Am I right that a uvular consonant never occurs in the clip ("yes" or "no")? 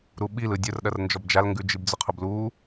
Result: no